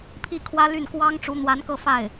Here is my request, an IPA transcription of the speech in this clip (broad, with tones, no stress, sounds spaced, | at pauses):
pʰ i˥˩ kʰ w ä˥ l y˥˩ n k w ɑ˥ ŋ ʈ͡ʂ u˧˥ n̪ w a˧˥ n k ɤ˥˧ f a˥˩ ɪ̯